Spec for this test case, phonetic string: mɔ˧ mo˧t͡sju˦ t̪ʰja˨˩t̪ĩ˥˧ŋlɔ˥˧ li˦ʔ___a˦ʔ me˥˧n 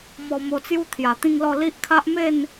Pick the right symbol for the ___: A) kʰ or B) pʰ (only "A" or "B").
A